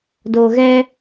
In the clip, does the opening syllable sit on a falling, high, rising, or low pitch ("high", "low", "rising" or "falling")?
low